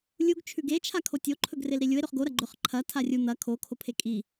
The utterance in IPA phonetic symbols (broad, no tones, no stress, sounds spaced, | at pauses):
lʲ u ɡ t͡ʃʰ ʉ ɡ e t͡ʃʰ a kʰ o tʲ o ǃʰ ɵ ɡ r e l ɾ i lʲ u e̯ ɾ ɵ χ ɡ o ɾ ɐ ɡ͡ǃ ɵ χ ǃʰ ɐ tʰ a rʲ u n̪ ɐ kʰ o kʰ o pʰ e kʼ i